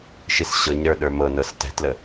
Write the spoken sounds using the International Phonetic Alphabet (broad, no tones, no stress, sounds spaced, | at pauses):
ʃ i s ɕ ɤ ɲ ɾ ə˞ ɗ ə˞ m ɤ n ɤ s t ɛ̤ t l ə